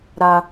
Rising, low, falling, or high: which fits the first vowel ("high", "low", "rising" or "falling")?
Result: high